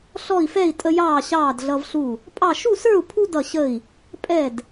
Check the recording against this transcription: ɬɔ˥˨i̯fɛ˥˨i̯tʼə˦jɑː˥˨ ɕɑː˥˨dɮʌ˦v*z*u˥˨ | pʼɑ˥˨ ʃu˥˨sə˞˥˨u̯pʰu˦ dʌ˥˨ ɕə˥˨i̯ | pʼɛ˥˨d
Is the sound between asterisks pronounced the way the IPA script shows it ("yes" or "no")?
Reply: no